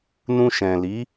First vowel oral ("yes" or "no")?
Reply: no